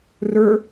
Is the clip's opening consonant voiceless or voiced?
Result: voiced